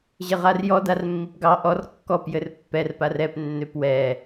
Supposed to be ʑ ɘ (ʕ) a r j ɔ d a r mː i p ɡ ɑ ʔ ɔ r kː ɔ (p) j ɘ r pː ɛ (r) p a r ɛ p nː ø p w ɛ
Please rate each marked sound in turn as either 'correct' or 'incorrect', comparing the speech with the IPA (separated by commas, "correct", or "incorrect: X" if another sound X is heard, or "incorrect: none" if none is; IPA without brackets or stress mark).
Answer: incorrect: ʁ, correct, correct